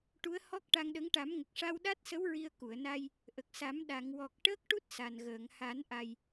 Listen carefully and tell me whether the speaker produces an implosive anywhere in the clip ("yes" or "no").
yes